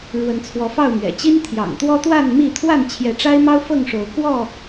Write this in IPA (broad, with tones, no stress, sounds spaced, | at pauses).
ɻ w ə˨˦ n t͡sʰ w ɔ˨˦ f ɑ˥˨ ʊ̯ m ɥ ɛ̰˨˩ t͡ɕ i˦ n t̪ʰ j ɑ̰˨˩ ŋ t̪ w ɔ˦ t̪ w a˥˨ n m i˥˨ t̪ʰ w a˥˨ n t͡ɕʰ j ɛ˨˦ ʈ͡ʂ a˦ ɪ̯ m ɑ˦ ʊ̯ f ɤ˥˨ ŋ ʂ o˨˦ ʊ̯ k w ɔ˥˨